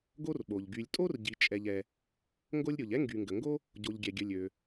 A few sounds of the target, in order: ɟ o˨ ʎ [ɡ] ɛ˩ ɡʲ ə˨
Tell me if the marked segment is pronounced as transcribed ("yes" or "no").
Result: no